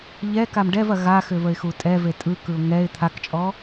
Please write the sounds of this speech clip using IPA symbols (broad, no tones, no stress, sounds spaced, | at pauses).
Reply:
ʎ ɛ k a m ɖ ɛ v ɐ ɣ a x ʏ v ə ɪ̯ x u tʼ ɛ v e tʼ ɯ k ɯ ʊ̯ ŋ ɛ ɪ̯ t̪ʰ a k t͡ʃʼ ɔ